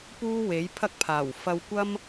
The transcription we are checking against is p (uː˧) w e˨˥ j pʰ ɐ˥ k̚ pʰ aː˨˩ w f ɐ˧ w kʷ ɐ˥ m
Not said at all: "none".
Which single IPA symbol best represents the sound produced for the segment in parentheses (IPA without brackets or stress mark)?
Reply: uː˥